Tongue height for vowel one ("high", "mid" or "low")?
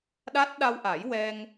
low